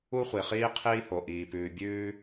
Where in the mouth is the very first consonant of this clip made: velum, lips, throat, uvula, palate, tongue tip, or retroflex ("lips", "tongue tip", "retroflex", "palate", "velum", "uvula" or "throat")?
uvula